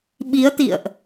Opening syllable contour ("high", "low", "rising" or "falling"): rising